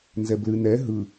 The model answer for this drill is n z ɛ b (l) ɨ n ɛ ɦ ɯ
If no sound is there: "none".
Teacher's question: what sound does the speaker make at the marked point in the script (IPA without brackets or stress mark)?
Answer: l